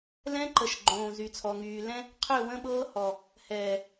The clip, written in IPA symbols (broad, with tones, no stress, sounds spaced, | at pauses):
l ɛ̃˦ ǃ ə˨ ʃ ɡ͡ǃ õː˨ z y˨ t͡sʰ ɔ˨ ŋ yː˨ l ɛ̃˦ | qʰ ø˦˨ w ə̃˦ ɓ ɤː˦ h ɔ˨ | h ɛː˨